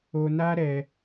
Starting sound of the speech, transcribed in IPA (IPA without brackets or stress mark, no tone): o